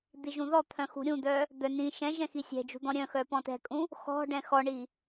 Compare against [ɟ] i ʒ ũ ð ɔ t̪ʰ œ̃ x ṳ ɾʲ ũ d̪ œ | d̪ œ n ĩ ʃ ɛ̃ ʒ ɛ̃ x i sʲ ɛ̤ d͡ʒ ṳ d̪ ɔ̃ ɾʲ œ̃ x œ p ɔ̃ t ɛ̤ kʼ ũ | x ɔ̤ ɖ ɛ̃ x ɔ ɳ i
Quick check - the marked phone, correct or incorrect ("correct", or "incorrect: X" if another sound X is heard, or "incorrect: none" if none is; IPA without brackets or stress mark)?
incorrect: d̪